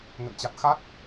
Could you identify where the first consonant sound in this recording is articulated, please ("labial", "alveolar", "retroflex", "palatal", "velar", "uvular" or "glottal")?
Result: velar